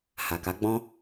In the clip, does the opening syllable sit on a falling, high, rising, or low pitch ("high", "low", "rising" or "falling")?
low